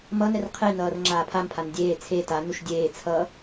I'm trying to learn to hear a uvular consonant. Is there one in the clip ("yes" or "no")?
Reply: yes